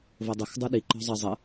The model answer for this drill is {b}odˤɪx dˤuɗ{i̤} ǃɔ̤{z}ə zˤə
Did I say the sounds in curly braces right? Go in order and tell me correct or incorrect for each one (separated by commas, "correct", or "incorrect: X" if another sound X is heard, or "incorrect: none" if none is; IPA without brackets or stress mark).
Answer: incorrect: v, incorrect: i, incorrect: zˤ